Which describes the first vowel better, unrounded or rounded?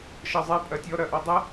unrounded